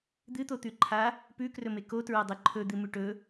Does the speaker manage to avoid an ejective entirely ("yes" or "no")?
yes